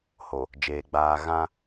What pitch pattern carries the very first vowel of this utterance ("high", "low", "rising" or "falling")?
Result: low